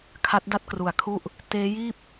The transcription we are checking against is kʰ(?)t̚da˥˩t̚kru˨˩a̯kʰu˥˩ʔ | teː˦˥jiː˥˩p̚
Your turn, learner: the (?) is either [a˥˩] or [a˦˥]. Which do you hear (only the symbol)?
a˦˥